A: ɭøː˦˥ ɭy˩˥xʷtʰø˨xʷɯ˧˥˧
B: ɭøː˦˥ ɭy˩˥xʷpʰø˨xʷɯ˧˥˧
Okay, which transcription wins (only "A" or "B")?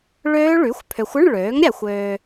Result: B